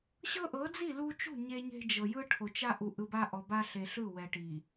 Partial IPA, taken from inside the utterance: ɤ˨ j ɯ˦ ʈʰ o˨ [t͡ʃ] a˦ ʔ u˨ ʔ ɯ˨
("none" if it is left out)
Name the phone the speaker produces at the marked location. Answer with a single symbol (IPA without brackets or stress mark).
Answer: t͡ʃ